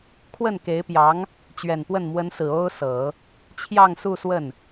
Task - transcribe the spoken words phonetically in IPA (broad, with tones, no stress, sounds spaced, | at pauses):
kʰ w ə˥˩ n k e˧˥ ɪ̯ p j ɑ˧˥ ŋ | t͡ɕ ɥ ɛ˨˩ n p w ə˥˩ n m w ə˧˥ n s ɹ̩˨˩ o˥ ʊ̯ s ɤ˨˩˦ | t͡ɕʰ j ɑ˥˧ ŋ s u˥˧ s w ə˥˩ n